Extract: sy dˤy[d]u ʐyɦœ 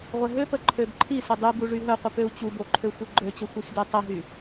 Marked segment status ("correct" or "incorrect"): incorrect